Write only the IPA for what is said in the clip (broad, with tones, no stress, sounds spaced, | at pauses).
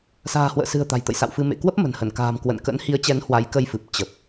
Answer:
s a̤ː˨˩ h w ə̰ː˧˨ s ɨ̤˨˩ ə̯ t̪ a̤˨˩ j t̪ ə̰˧˨ j s a̰˧˨ w f ɨ˧ m ḛ˧˨ k w ə˦˥ p̚ m ə̤˨˩ n h ə˧˩ n k a̤ː˨˩ m k w ə̰˧˨ n k ə̰˧˥ n h i˨˦ ə̯ t͡ɕ ɛ˨˦ n h w a˨˦ j k ə˧ j f ɨ˨˩ p̚ t͡ɕ ə˨˩ p̚